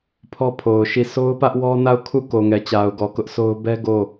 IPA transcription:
pʰ ɔ˦ pʰ o˨ ʊ̯ ʃ i˦˨ sʰ o˦ ʊ̯ p ä˦ ʔ w ɔ˦ n a˦˨ ʊ̯ kʰ u˦˨ k o˨ ŋ ɛ˨ t͡ɕ a˨ ʊ̯ ɡ ɔ˨ k ʊ˦ ʔ sʰ o˦ ʊ̯ b ɛ˦ ɡ o˦˨

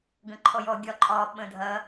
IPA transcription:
ɡ ə̃ ǃʰ ɔ j ɔ ɡʲ ɒ ǃʼ ɒ ɓ ə̃ dʱ ɐ

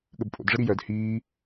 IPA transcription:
ɠ ə b pʼ o̰ d ʐ ə ɾ i j œ d h iː

